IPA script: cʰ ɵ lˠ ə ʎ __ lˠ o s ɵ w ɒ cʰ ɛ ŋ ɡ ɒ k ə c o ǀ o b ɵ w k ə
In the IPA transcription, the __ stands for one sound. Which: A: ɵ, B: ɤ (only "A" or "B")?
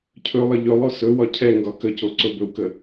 A